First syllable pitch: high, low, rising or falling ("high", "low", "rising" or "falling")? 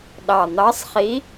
low